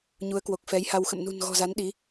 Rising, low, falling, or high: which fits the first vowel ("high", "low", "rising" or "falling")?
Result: rising